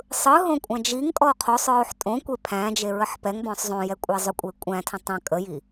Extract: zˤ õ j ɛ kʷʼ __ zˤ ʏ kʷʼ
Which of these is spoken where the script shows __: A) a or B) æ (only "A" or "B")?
B